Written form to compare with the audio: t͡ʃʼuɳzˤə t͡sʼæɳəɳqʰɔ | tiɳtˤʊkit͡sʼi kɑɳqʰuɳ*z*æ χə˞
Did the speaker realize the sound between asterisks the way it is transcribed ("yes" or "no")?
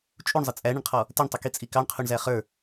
yes